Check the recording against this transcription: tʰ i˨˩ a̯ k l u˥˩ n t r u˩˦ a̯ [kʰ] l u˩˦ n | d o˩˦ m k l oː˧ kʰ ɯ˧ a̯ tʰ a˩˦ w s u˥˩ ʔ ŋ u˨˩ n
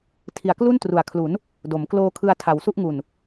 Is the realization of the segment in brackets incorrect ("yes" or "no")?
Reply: no